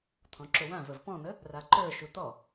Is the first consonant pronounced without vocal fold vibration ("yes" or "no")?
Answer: yes